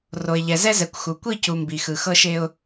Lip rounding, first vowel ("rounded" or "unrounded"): rounded